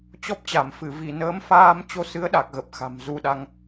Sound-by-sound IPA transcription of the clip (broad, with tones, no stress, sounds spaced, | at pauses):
t͡ɕ ɔ˦˥ p̚ t͡ɕ a˧˩ m f ɨ˧˩ v i˧˩ n əː˨˦ m f aː˧ m t͡ɕ o˧ s ɨ˨˦ ə̯ ɗ a˨˩ k̚ ɣ ə˨˩ p̚ x a̤˨˩ m z u˧ ɗ a˧ ŋ